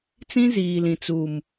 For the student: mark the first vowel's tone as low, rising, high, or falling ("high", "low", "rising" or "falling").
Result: high